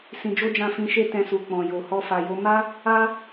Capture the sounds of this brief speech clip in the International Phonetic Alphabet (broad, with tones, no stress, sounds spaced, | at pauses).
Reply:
s ĩ˧ d͡ʒ o˦ d͡ʒ ã˦˨ f ĩ˧ ʃ e˦ t ɛ̃˧ s u˨ k͡p ɔ̃˨ j o˨ h ɔ˧ f a˨ j o˨˦ m a˦ | a˦